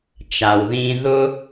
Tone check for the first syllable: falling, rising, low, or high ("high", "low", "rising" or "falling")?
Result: low